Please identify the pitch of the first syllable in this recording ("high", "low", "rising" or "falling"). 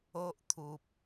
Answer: high